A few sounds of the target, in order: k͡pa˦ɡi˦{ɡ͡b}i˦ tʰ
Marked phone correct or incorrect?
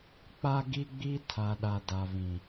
correct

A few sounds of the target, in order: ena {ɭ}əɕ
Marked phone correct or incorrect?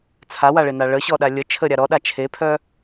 correct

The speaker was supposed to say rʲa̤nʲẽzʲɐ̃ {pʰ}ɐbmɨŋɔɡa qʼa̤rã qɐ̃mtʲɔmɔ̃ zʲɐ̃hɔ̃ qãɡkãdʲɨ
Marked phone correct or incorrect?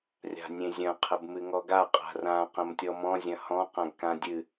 incorrect: qʰ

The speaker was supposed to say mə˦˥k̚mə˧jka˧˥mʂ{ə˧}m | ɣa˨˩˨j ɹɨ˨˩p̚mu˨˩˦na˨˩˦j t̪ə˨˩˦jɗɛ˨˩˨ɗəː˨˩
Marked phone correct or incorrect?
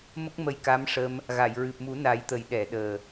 correct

